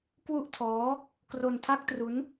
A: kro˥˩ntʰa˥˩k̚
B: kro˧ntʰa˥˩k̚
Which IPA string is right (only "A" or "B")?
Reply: B